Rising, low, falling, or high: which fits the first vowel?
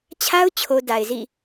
high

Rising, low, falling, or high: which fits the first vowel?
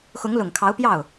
rising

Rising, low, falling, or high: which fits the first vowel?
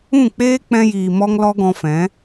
falling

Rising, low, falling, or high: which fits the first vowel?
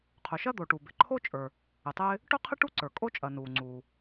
low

